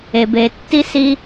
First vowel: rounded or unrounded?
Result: unrounded